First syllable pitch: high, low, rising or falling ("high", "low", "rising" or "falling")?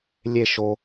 falling